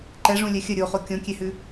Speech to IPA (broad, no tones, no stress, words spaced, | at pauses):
ǃɛʐũlʲɛ xʲə ɾʲoχo kʲõkʲehʉ